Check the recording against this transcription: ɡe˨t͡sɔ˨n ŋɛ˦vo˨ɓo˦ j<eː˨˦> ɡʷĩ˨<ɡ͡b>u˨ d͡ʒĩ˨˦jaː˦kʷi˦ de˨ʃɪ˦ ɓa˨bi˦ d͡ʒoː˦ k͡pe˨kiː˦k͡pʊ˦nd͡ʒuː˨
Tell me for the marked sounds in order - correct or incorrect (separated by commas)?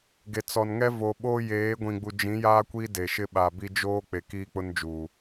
correct, correct